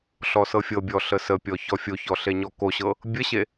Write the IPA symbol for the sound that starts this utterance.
ɬ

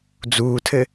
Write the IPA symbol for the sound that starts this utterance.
d͡z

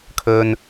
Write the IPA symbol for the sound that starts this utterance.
kʰ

